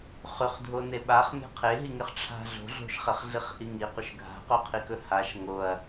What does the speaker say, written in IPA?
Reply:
χ ʉ χ dʱ o n e ɓ a χ n e̤ qʰ e ɦ i ŋ e χ ʈ͡ʂʰ a̤ ɮ o̤ ɮ o̤ ʃ χ e χ ɮ i χ ʔ i ŋ i q ɵ ʃ ɡʱ a̤ q o qʰ i k ɵ h a ʃ ŋ o ɐ̯

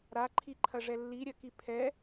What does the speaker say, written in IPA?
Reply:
ɾ a ǃʰ i ǃʰ ɐ ʐ ɛ lː i ɾʲ ɐ k i pʰ ɛ

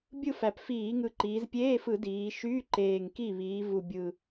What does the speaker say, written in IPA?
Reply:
bʲ ɯ˥˩ f æ˨˩ p f iː˧˩˧ ŋ ɯ˨˩ ǃ iː˩˧ z pʲ eː˧˥˧ f ɯ˧˩˧ d iː˩˧ ʃ yː˧˥˧ ǃ eː˨˩ ŋ k i˥˩ β iː˩˧ v u˨˩ bʲ ɯ˨˩

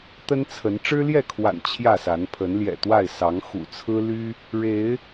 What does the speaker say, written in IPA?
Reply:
t̪ ə˦ n t͡sʰ ə˨˦ n ʈ͡ʂ ɻ̩˦ l j ɛ˥˨ kʰ w a̰˨˩ n t͡ɕʰ j ä˥˨ s a˨˦ n pʰ ə˨˦ n l j ɛ̰˨˩ t̪ w a˥˨ ɪ̯ s ɑ˨˦ ŋ x ṵ˨˩ t͡sʰ ɹ̩˦ l y˦ | ɻ e˨˦ ɪ̯

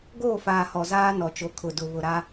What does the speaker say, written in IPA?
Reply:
ɡ oː˦˨ f aː˨ h ɔ˨ z aː˦ n ɔ˨ t͡ʃ o˨ kʰ ʊ˨ d ʊ˨ β ʊ˨ ɾ a˦

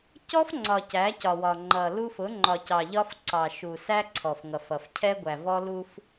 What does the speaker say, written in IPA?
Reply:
c ɔ˦ f ŋ͡ǀ ɒ˨ c æ˨˦ c ɒ˨ w ɒ˨ ŋ͡ǃ ʌ˨ l u˦ f ʊ˨˦ ŋ͡ǃ ɒ˨ c ɑ˨ ʎ ɒ˦ f ǀ ɑ˨ ʃ u˨ s æ˦ ǀʰ ɔ˨ f ŋ ʌ˨ f ʌ˨ f cʰ ɛ˦ ɡʷ æ˨ v ɔ˦ l u˦ f

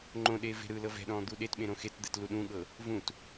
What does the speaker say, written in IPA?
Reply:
ŋ͡ǃ õ ɗ eː v e̤ ɾ ɯː l ɤ v ɛ̤ ɗ ɔ̃ː d̪ u ɗ e t ɓ ẽ ɾ õ x e t d̪ ɛ t l u ɗ ũ ɠ ɤ | v ũ t

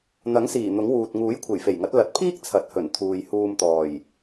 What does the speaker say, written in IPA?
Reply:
n̪ ɐ˨˥ ŋ s iː˨˩ n̪ ʊ˨˥ ŋ w uː˨ t̚ ŋ uː˨˥ j kʷʰ e˨˩ j f e˨˩ j ŋ ɐ˨˥ t̚ l ɐ˨ t̚ pʰ iː˥ k̚ t͡sʰ ɐ˨˥ t̚ h ɵ˨˩ n t̪ʰ uː˨ j h uː˧ m t̪ ɔː˨˩ j

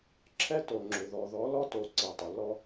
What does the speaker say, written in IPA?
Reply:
ǁʰ ɛ˦ t o˨ ŋ͡ǁ ʏ˨ ð ɔ˨ ð ɔ˨˦ l ɔ˦ t o˨ ǀ i˨ tˤ ʏ˨ l ɔ˦

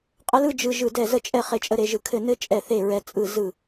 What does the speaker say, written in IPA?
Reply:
qʼ ə˦ l ɯ˦ d͡ʒ ɯ˦ ʒ ɯ˥˨ d ɛ˥˨ z ə˥˨ t͡ʃʼ ɛ˥˨ χ e˦ t͡ʃʼ ə˦ ɾ e˦ ʒ ɯ˦ kʰ ɘ˥˨ n ɘ˦ t͡ʃʼ ɛ˥˨ θ e˥˨ ɹ ɛ˦ t͡sʼ ɯ˥˨ z ɯ˥˨

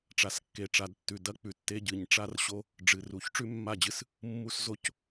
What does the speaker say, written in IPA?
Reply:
ʈ͡ʂ a˨ s kː e˨ ʈ͡ʂ a˨ d tː ʉ˨ d ɐ˦ k͡p ʉ˨ tː e˦ ɟ ɨ˨ ɲ ʈ͡ʂ a˦ r ɕ o˦ | ɖ͡ʐ ɨ˨ r u˨˦ ç ʈ͡ʂ ʉ˦ mː a˦˨ d͡ʑ ɨ˦ s | mː u˦ s z o˦ c

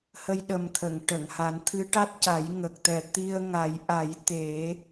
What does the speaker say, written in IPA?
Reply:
h ə˧ j ɗ ə˨˩ m t̪ʰ ə˨˩˨ ŋ ʈ ə˨˩˨ ŋ h a˨˩˦ n t̪ʰ ɨ˧˥ ʈ a˦˥ t̚ c a˨˩˦ j ŋ ə˨˩ k̚ t̪ ɛ˨˩ t̪ i˧ ə̯ ŋ a˨˩˦ j ʔ a˨˩˦ j t̪ e˨˩˦

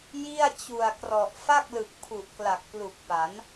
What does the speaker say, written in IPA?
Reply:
j i˥˩ a̯ t͡ɕ u˨˩ a̯ k r ɔ˨˩ ʔ f a˥˩ k̚ l ɯ˨˩ k̚ pʰ u˨˩ ʔ k l a˨˩ k̚ p l u˨˩ k̚ p a˩˦ n

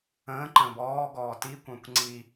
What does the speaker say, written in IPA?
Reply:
ə̃ː ǃ ə̃ː b ɔː ɡ ɔː t i kʷ ə̃ː kʷ ŋ͡ǀ i

